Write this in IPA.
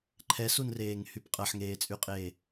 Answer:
ǃʰ ɛ s u n r eː ŋ h y p qʼ ɐ ħ ŋ eː t͡sʼ y qʼ eː

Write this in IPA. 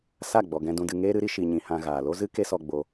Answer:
s a˦˨ ɡ͡b ɔ˨ ɡ ɛ̃˧ d ũ˧ d ɨ˧ ŋ eː˦ ɾ ɨ˦ ɾ i˧ ʃ i˨ ɲ ĩ˨ h ã˧ ɣ aː˨ l o˦ z ɨ˦ k e˦ s ɔ˧ ɡ͡b o˧

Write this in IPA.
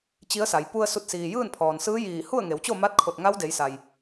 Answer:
t͡ɕ i˧˥ ə̯ s a˩˧ j p u˧ ə̯ s u˧˩ t̚ s iː˩ j ɯː˥˨ n pʰ ɔː˩ n s ɯː˧˥ j iː˧˩ h u˥˨ ə̯ ŋ e˩˧ w t͡ɕ o˥˨ m a˧˥ t̚ kʰ o˧˩ t̚ ŋ a˧˥ w d e˩˧ j s a˩ j

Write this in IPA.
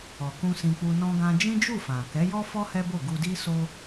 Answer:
ɔ˨ k ũ˧ s ĩ˧ k͡p u˧ n ɔ̃˧ ɡ ã˧ d͡ʒ ĩ˦ d͡ʒ u˦˨ f ã˨ k ɛ˨˦ j ɔ˦ f ɔ˦ h ɛ˦ b o˦˨ ɡ u˧ d i˦ s o˦

